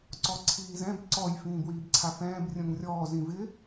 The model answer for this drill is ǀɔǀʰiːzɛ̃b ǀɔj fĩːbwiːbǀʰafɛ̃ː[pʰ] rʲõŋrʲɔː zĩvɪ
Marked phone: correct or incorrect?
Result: incorrect: b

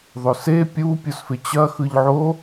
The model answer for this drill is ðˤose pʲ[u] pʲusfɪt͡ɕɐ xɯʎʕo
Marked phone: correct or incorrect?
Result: correct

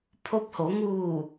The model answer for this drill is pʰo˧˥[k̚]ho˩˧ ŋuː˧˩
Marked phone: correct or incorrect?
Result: incorrect: p̚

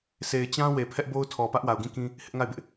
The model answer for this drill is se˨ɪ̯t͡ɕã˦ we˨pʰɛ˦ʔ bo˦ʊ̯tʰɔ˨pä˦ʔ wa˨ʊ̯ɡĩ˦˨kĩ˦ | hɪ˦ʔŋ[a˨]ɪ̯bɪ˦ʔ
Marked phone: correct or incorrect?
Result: incorrect: a˦˨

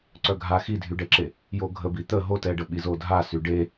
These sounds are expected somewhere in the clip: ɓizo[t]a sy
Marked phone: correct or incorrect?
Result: incorrect: dʱ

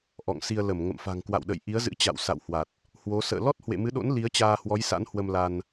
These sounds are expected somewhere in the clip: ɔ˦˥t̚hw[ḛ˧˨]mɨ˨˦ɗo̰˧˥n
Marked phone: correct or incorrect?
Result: correct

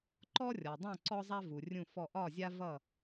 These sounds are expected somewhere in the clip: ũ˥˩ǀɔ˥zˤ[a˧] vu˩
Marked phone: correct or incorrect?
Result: incorrect: a˥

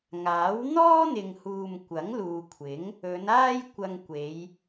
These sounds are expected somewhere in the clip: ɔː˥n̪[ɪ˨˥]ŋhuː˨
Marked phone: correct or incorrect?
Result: incorrect: ɪ˨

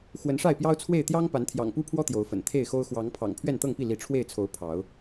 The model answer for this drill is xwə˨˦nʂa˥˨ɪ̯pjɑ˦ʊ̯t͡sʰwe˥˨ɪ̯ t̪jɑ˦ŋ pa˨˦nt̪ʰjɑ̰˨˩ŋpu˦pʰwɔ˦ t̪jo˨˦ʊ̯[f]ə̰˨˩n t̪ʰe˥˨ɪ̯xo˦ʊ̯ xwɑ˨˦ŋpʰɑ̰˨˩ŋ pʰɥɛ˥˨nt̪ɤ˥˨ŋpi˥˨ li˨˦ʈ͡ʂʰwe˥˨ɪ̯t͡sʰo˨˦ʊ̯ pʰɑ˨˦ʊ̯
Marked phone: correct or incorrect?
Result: correct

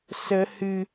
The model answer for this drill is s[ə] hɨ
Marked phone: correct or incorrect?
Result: correct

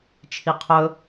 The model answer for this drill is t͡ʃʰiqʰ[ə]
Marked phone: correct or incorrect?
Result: incorrect: ɵ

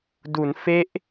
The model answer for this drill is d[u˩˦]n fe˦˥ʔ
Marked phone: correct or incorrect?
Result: correct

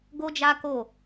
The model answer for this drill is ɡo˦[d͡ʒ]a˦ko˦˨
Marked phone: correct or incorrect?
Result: correct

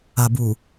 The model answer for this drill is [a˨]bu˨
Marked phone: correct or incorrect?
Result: correct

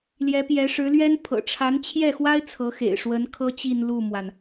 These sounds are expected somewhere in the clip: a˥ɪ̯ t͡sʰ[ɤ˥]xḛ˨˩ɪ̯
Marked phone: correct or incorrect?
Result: incorrect: ɤ˧˥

